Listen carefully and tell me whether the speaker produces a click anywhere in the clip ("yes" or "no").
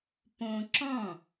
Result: yes